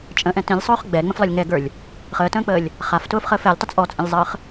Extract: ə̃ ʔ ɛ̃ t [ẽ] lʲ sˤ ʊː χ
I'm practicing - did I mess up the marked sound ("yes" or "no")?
yes